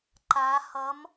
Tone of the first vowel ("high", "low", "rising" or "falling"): rising